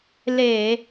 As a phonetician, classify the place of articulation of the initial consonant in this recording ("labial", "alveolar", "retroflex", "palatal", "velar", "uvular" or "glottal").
alveolar